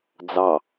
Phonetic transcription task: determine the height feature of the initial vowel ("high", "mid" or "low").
low